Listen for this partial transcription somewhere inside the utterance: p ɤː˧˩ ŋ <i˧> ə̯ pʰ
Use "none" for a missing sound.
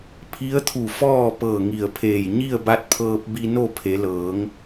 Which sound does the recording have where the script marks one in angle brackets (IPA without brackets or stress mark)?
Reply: i˧˩